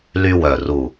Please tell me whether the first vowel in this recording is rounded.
yes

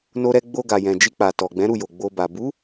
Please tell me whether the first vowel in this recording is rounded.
yes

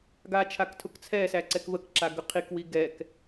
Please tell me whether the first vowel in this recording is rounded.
no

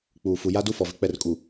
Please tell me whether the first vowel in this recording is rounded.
yes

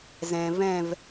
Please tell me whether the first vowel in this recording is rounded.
no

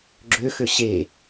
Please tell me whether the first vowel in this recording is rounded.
yes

